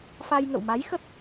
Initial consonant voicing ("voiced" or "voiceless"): voiceless